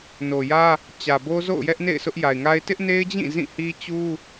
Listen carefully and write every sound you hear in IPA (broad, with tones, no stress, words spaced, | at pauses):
no˨jä˦ | t͡ɕä˨bo˦ zo̰˦˨ʊ̯jɛ˦ʔnḛ˦˨ɪ̯ sʊ˦ʔ ja˨ɪ̯ŋa˦ɪ̯ tɪ˦ʔne˦ɪ̯d͡ʑĩ˦˨ zĩ˦˨hi˦t͡ɕu˦